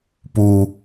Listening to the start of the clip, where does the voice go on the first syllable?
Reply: high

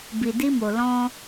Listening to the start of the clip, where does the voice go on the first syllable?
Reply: low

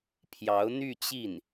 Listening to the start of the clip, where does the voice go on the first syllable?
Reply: rising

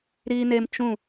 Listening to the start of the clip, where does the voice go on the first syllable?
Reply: low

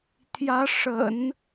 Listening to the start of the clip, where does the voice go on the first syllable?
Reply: rising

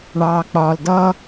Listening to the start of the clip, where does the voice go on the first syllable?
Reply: low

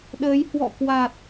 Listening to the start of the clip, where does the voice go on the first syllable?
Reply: rising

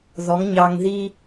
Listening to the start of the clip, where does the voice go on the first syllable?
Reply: rising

